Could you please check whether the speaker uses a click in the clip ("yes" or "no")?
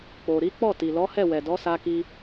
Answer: no